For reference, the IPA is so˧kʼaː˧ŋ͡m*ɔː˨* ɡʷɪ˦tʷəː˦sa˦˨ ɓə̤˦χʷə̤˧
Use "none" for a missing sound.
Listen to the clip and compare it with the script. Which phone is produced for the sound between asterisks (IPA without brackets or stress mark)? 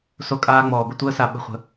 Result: ɔː˨